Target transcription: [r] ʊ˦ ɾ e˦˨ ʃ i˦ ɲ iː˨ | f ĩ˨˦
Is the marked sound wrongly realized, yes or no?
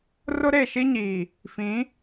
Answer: no